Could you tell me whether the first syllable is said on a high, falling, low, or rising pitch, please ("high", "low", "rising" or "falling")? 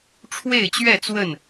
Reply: falling